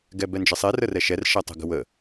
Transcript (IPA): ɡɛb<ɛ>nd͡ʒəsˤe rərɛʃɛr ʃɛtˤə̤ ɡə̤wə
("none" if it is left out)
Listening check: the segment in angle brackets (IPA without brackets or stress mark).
ɛ